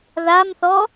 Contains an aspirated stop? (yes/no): no